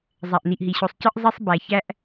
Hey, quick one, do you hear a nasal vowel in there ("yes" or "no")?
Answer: no